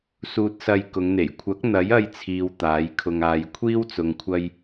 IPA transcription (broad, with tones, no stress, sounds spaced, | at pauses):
s uː˧ t̚ s ɐ˧ j k ʊ˨˧ ŋ n̪ e˨˩ j kʷʰ ɐ˨˥ k̚ n̪ ɐ˨˥ j ɐ˧ j t͡sʰ iː˨ w t̪ aː˨˥ j kʰ ʊ˧ ŋ aː˧ j kʷʰ iː˥ w t͡s ʊ˨ ŋ kʷʰ ɐ˧ j